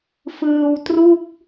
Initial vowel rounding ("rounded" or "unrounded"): unrounded